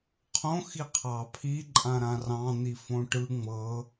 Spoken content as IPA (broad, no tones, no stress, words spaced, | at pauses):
qʰõ xiqʰɑ pʰi ǃʼãɾãrɑ̃ n̪ifõʈɯ ŋ͡mɤ